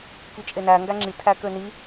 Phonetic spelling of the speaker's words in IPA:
kit͡ʃʼenæ ŋɡæŋ͡ǁi tʰækøni

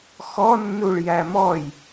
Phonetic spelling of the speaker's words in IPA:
xɔnːuɭ jæmɔj

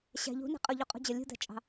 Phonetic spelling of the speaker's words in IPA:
ɕæ̤ ʎṳnɛ̤ qʼʊʎuqʼṳd͡ʑʌ lʲṳd̪æ̤t͡ʃʼɑ̤

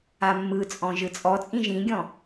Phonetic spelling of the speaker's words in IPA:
amːɯt͡sʼɔ̃ ʒɯt͡sʼɔt͡sʼĩ ʒĩɡʲɔ̃

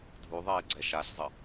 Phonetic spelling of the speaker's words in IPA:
dʱuðˤeː ɡ͡ǀɛʃaɬzˤə

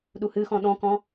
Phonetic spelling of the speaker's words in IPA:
ɗuhɨxɔ̃ ɗɔ̃kɔ̃

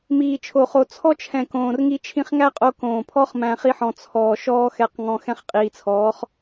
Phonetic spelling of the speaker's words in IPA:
miː˨t͡ʃʰo˨ χo˨t͡sʰɔ˦t͡ʃʰɛ̃˨ kõː˨rŋi˧ t͡ʃʰĩ˧χŋæ˦qʼo˧ kõː˨pʰɔ˦χ mæ̃˧χi˦ħɔ̃˧ t͡sʰɔː˨ ʃɔː˦xɛ˧qŋɔ̃˧ xɛ̃˧χqʼiː˨t͡sʰɔː˨˦χ

